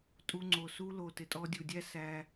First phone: tʼ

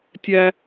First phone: tʲ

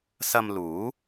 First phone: s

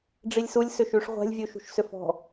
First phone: ɖ͡ʐ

